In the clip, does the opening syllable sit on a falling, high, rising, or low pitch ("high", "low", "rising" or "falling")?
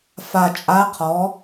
low